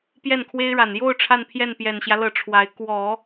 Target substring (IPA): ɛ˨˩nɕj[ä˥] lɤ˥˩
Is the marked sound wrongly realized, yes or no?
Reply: yes